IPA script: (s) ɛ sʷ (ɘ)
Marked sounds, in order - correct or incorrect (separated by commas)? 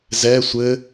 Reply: incorrect, correct